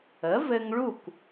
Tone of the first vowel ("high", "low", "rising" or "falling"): rising